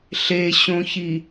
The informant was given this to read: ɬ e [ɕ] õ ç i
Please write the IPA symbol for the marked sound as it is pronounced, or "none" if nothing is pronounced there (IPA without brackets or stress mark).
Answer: ɕ